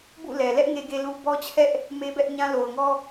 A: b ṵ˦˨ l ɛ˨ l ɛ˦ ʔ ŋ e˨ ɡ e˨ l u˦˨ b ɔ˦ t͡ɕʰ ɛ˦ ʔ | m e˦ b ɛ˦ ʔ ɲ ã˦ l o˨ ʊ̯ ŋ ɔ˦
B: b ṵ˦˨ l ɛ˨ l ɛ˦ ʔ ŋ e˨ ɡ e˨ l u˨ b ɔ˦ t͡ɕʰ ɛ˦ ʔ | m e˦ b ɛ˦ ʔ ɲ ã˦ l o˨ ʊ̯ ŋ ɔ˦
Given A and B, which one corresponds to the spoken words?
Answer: B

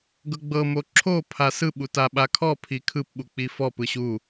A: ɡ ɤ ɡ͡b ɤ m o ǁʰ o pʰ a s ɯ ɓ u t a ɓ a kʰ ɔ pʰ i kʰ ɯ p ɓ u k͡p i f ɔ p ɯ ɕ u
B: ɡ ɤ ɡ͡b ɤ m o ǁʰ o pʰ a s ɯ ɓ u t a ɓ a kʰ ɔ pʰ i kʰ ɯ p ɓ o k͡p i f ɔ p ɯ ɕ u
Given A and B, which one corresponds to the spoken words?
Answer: A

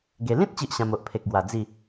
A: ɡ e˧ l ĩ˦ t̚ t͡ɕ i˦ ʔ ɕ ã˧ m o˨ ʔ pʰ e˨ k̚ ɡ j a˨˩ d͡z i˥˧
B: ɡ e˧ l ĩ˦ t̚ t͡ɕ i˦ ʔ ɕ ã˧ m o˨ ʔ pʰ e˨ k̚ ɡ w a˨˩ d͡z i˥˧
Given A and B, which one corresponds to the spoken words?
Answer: B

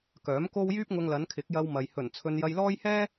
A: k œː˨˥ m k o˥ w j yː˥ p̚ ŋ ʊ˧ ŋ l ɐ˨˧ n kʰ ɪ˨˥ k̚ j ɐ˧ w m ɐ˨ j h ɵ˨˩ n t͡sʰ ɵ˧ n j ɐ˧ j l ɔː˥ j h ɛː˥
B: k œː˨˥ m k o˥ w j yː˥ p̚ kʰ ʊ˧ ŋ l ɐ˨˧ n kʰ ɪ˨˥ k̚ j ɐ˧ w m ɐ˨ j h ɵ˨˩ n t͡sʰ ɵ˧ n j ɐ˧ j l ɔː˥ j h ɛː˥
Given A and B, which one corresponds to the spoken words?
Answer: A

